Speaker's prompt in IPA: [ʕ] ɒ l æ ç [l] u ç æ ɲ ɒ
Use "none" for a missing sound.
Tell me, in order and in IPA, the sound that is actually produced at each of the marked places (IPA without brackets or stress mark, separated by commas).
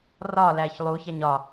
r, lˠ